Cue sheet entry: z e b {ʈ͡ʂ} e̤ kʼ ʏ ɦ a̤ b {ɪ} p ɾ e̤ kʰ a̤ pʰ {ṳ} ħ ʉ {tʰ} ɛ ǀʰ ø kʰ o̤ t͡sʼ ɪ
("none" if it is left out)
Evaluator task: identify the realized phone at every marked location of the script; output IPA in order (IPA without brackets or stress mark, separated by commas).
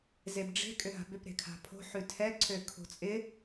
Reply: ɖ͡ʐ, ʏ, o̤, tʰ